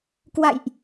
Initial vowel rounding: unrounded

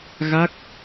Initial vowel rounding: unrounded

